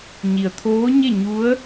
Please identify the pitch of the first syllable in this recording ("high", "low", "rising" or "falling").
low